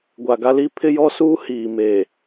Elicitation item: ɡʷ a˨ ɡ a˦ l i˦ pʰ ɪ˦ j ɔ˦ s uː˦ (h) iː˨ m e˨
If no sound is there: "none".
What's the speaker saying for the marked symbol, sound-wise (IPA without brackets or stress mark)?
h